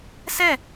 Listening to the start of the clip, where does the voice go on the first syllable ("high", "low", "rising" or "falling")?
falling